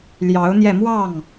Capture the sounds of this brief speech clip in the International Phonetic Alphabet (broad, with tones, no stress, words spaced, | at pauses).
ljɑ˧˥ʊ̯n̪jɛ˧mwɑ˥˩ŋ